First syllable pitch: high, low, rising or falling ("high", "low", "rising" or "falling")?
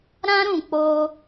high